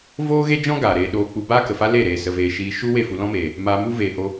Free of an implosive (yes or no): no